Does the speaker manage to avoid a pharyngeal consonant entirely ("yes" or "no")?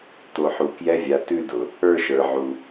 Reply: no